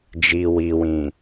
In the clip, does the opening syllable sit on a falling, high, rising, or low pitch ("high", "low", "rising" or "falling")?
low